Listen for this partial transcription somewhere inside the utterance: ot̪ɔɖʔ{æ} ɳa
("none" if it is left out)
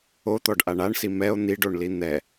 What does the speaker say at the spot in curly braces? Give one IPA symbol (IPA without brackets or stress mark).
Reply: a